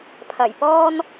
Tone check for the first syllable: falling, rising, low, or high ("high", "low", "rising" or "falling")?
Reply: low